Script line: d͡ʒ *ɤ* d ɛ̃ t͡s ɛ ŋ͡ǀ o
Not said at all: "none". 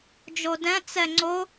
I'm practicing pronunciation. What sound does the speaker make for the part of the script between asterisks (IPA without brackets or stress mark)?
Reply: o